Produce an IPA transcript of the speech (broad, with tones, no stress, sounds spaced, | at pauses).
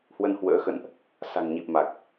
h w ə˧ n h w ə̰ː˧˥ x ə̰˧˨ n ʔ | s a̤˨˩ ŋ ɲ i˨˩ p̚ m a˨˩ k̚